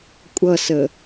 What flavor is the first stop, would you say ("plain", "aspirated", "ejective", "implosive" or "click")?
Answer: ejective